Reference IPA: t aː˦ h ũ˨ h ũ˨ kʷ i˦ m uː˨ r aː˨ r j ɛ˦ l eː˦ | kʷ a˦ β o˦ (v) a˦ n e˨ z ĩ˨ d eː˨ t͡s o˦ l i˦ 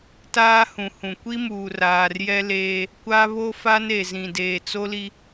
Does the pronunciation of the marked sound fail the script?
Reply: yes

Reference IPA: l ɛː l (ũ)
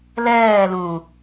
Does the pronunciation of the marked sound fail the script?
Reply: no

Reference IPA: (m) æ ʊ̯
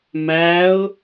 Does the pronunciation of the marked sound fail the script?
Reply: no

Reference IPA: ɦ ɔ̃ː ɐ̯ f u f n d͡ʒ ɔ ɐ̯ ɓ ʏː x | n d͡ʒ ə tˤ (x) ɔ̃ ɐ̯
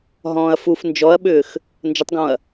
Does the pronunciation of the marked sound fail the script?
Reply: yes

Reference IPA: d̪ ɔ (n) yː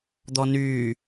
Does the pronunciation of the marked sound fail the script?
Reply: no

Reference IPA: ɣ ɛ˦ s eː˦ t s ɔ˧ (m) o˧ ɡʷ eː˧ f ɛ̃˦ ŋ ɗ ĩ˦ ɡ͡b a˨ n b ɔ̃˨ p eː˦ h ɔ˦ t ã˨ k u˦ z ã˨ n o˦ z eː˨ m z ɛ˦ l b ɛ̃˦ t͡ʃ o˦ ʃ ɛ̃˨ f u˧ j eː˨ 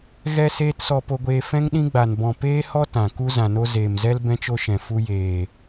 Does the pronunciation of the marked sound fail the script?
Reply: yes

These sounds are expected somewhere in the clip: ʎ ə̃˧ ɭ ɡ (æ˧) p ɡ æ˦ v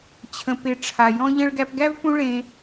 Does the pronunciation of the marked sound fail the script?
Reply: no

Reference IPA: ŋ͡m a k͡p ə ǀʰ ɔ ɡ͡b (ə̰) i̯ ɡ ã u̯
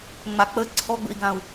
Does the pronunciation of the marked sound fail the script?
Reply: no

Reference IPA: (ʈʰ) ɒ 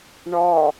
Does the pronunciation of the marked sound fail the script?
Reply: yes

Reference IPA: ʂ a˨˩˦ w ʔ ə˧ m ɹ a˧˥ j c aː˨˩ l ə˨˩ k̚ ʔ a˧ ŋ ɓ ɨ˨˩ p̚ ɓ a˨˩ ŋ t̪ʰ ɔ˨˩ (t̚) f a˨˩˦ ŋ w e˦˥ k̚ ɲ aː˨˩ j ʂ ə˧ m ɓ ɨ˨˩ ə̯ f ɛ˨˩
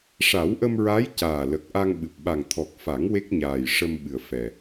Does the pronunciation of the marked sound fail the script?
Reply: yes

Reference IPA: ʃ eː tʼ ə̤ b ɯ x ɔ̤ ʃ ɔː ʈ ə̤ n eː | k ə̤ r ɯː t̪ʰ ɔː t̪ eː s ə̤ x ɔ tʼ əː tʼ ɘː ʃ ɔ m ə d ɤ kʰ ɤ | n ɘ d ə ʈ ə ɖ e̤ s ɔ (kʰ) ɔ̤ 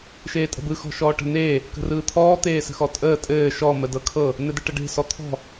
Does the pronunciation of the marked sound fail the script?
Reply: yes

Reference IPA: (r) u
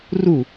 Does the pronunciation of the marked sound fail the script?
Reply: no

